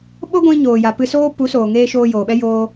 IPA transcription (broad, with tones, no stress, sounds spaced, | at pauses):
ɓ o˦ ɡʷ ĩ˧ ɲ oː˨ j a˨ p ɨ˧ s oː˦ p u˨˦ s oː˨ ŋ eː˦ ʃ oː˧ j oː˨ ɓ ɛ˦ j oː˧